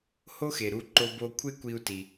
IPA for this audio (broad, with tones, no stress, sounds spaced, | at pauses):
h o˥ x e˩ ɾ u˧ ǃ o˧ b o˧ kʷʰ e˥ kʷ i˧ u̯ t i˩